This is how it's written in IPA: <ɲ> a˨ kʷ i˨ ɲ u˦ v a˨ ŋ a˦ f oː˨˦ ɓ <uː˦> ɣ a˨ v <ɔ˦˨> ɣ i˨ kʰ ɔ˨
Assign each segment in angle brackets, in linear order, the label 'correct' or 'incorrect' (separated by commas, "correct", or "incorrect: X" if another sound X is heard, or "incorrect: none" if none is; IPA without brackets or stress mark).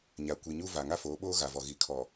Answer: correct, incorrect: oː˦, incorrect: ɔ˨